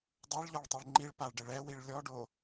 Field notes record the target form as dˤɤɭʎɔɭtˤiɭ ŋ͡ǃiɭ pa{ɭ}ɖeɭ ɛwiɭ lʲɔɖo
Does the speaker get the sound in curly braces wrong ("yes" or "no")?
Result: no